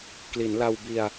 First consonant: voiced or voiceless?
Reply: voiceless